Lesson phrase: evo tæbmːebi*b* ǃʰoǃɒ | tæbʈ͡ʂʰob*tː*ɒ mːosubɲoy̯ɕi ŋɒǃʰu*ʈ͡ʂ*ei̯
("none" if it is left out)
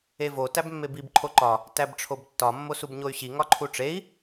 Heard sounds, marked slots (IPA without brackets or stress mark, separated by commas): b, tː, ʈ͡ʂ